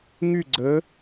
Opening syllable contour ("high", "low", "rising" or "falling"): falling